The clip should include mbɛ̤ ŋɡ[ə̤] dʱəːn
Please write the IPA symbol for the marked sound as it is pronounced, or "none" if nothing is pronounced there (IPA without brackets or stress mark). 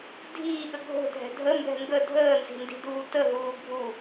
ə